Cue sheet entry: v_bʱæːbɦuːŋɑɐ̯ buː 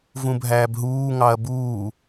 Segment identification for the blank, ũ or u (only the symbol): ũ